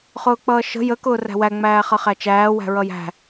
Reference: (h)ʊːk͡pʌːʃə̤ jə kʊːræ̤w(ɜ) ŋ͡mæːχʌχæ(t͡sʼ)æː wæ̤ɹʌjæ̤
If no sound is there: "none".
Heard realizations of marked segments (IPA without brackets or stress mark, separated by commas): χ, æ, t͡ʃ